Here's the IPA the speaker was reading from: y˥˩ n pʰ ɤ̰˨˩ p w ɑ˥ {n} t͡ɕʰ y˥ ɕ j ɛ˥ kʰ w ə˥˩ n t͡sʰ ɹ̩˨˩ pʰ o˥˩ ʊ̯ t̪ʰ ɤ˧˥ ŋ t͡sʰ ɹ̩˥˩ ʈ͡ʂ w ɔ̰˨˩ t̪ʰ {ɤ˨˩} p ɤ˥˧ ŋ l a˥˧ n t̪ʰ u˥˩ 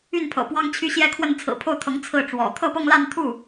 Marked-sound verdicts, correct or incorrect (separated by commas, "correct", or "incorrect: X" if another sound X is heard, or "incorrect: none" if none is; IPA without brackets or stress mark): incorrect: ŋ, incorrect: ɤ˥˧